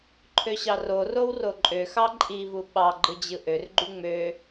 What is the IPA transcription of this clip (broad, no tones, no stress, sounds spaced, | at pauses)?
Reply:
ǃʰ ø ɕ ɑ r o r o w r o ǃʼ ø x ɑ ǃʼ i v u ɓ ɑ ɡ͡ǃ ɯ d͡ʑ ɯ ʔ ø r ɡ͡ǃ y ŋ͡m ø